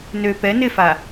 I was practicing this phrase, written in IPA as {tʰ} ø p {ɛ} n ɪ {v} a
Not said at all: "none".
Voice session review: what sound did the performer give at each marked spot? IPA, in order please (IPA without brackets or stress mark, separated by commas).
n, ɛ, f